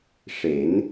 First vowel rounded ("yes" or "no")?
no